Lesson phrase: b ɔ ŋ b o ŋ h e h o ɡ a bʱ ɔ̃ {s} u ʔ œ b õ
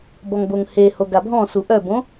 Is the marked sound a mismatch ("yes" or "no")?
no